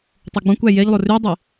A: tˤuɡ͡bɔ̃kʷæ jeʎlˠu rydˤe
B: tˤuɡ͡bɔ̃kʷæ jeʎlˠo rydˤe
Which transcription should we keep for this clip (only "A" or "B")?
B